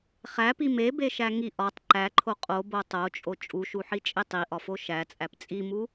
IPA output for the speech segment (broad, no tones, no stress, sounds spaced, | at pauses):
χ æ p i m e b e ʃ æ ŋ i ʔ ɒ tˤ ǃ æ ǃʰ o qʼ o b o tˤ o t͡ʃʼ o t͡ʃʼ u ʃ u ħ i t͡ʃʼ e tˤ i ʔ ɒ f o ʃ æ t͡sʼ æ p t͡sʼ i m u